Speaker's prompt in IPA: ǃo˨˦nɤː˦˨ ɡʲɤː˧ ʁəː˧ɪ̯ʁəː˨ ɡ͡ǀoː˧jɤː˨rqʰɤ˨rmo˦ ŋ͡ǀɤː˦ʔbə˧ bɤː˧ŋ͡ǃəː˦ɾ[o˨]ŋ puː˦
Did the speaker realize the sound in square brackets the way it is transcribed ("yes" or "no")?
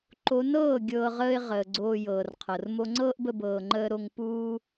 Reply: no